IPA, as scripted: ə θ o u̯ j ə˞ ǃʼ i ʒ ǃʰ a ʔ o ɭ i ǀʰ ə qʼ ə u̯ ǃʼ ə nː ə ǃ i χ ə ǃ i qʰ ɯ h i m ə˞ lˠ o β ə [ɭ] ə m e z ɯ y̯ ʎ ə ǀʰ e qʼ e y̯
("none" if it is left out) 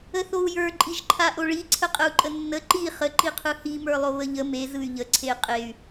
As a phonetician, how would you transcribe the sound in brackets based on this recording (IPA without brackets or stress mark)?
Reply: ʎ